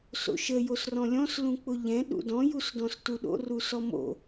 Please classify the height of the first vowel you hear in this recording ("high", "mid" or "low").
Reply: mid